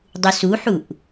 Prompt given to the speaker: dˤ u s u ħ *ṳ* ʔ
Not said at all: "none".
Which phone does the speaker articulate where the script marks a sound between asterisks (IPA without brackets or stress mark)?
u